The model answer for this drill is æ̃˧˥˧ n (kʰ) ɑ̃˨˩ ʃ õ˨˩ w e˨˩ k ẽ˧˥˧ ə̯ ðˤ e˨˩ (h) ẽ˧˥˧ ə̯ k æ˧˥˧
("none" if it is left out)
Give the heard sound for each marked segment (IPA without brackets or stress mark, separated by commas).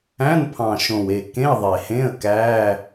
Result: pʰ, h